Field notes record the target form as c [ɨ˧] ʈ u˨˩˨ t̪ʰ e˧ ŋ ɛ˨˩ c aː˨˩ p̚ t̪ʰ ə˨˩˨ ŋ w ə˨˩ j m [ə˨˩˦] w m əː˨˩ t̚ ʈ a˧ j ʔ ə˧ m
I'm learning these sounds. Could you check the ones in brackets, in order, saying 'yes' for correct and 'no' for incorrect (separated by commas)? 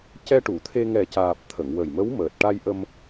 no, no